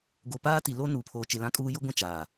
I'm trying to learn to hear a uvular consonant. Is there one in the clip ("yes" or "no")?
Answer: no